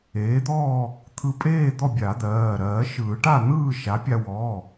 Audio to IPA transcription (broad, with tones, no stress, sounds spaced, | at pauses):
eː˩˥ d̪ ɔː˥˨ | t̪ʰ ɯ˧ pʼ eː˥˨ d̪ ɔ˥˨ bʲ a˨˩˦ d̪ ɜː˩˧˩ ɾ ɜː˨˩˦ ʃ ɯː˨˩˦ ʈ a˥˨ n̪ ɯː˥˨ ʃ a˩˥ pʲ a˧ w ɔː˩˧˩